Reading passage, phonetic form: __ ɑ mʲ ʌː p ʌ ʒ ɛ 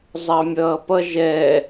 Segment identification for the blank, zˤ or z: zˤ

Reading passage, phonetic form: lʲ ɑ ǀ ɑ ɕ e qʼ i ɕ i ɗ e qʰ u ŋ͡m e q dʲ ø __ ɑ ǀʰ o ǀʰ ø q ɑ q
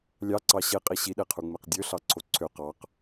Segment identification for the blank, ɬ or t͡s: ɬ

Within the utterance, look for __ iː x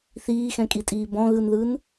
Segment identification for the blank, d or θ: θ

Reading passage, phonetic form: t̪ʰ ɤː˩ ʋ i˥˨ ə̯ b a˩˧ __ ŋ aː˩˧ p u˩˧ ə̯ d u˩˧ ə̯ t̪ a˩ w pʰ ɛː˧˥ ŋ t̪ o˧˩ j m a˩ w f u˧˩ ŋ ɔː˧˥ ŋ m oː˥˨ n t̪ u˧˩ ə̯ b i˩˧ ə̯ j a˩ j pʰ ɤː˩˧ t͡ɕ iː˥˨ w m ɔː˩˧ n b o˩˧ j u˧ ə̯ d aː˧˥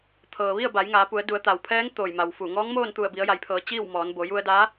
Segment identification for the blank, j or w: j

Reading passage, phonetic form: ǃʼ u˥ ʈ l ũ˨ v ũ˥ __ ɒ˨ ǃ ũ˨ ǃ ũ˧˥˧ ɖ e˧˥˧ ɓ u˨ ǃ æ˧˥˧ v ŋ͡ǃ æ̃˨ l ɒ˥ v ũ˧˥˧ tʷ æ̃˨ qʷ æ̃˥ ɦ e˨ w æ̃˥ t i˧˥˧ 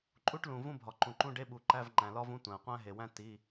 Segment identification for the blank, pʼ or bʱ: bʱ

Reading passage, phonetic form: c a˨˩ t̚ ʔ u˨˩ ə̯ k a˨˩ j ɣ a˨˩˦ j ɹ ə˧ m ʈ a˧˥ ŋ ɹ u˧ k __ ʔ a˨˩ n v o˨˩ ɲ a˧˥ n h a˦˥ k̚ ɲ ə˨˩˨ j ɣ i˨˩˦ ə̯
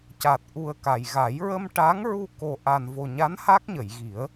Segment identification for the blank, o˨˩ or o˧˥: o˨˩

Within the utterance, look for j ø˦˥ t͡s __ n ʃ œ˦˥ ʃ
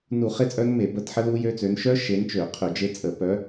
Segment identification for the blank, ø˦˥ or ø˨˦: ø˨˦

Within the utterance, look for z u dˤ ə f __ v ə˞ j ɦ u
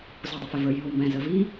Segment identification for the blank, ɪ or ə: ɪ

